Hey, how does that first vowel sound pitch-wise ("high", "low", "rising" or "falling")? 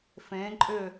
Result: rising